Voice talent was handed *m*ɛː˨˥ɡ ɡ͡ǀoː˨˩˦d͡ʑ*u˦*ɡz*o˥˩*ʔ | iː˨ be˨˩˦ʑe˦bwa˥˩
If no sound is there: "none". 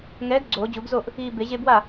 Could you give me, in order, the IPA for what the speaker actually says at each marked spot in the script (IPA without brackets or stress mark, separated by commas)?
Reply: ŋ, u˨˩˦, o˥˩